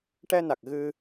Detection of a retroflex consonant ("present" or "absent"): present